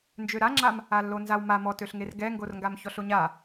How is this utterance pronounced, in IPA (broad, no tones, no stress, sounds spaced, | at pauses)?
n d͡ʒ ø ɾ a ŋ͡ǁ a m | a lː o n z a w m a m ɔ t ø ɬ ŋ e r ɡ ɛ ŋ ɡ o r ŋ ɡ a m ç ɔ ɬ o ɲ a